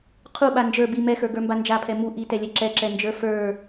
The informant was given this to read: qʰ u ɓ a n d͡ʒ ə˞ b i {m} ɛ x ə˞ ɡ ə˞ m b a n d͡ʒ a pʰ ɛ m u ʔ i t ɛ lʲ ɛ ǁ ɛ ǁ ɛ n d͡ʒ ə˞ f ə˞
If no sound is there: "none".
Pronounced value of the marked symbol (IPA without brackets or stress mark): m